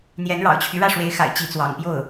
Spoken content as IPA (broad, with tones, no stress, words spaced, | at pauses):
n̪jɛ˧˥nɻɑ̰˨˩ʊ̯t͡ɕʰy˦ ɻä˥˩ʂwe˧˥ɪ̯xa̰˨˩ɪ̯ t͡ɕi˧˥t͡swɑ̰˨˩ŋ pjo˥˩ʊ̯